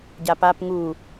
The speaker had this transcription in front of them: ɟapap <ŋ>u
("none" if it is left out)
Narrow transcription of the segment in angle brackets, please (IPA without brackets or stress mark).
ŋ